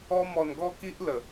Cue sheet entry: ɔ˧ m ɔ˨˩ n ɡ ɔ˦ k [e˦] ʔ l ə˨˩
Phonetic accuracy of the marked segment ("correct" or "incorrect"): incorrect